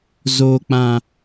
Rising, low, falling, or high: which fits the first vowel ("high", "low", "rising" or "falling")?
low